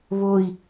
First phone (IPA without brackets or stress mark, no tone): β